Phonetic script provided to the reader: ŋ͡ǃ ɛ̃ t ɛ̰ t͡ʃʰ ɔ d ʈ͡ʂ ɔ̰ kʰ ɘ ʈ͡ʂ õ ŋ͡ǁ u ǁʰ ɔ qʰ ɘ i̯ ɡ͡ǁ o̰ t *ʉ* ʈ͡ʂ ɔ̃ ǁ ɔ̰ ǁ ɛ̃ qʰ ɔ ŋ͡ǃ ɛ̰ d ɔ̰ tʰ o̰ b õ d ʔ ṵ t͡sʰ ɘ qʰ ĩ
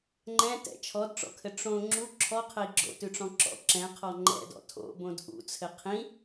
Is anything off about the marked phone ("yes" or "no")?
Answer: no